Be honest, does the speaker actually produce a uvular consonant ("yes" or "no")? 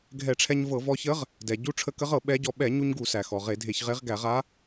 yes